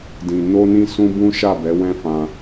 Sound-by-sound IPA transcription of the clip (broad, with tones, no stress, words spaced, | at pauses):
dĩ˨ no˧nĩ˧ sũ˦bũ˦ ʃa˦˨bɛ˨˦wɛ̃˦fã˧